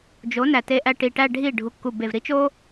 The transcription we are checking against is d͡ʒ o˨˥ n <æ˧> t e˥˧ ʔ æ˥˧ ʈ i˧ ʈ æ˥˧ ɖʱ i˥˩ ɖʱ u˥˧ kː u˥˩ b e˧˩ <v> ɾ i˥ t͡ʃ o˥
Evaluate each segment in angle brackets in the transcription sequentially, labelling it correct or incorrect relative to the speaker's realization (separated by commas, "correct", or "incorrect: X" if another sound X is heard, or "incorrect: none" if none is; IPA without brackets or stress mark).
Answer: correct, correct